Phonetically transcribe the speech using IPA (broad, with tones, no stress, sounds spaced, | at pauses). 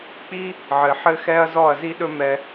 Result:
k͡p i˦ | ʕ ɘ˨ ħ ɘ˦ x ɛ˦ ɐ̯ z ɔ˦˨ ɐ̯ z i˦ ɗ ɵ˦ m ɛ˧